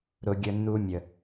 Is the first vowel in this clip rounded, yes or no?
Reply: yes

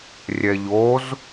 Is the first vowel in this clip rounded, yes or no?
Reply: no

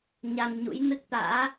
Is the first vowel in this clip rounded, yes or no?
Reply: no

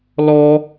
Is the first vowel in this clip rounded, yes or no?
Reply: yes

